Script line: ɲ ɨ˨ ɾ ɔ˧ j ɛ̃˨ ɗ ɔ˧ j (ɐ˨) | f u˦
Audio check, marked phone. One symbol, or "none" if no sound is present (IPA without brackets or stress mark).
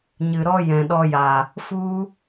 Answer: a˨